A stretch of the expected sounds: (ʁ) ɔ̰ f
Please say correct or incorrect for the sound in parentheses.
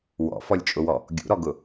incorrect